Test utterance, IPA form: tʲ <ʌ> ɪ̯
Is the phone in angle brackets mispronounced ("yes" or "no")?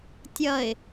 no